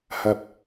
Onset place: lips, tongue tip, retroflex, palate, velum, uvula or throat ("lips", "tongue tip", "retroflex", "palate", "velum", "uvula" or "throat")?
throat